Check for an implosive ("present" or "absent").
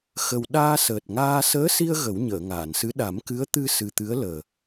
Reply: present